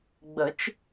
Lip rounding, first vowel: unrounded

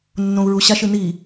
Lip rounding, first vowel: rounded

